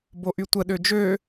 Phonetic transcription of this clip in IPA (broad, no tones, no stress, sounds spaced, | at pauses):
b o ʔ y tʷ ə ɗ ø d͡ʒ ø